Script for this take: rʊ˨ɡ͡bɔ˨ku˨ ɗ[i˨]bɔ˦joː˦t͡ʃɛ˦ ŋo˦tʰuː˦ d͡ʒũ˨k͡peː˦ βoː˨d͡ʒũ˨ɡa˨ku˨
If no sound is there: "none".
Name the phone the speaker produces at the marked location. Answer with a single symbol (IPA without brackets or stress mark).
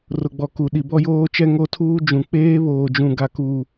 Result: i˨